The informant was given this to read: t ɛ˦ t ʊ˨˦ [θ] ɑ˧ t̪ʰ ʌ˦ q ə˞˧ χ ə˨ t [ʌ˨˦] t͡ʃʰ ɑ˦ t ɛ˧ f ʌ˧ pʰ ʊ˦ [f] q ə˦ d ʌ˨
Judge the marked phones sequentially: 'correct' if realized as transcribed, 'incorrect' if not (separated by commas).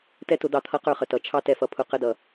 incorrect, correct, incorrect